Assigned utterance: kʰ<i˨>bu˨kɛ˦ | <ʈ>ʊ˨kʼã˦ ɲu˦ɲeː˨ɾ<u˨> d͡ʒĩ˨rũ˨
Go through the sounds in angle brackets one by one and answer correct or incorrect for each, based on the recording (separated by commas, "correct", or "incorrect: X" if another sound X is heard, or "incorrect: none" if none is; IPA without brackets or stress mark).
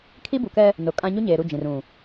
incorrect: i˦, incorrect: n, incorrect: u˦˨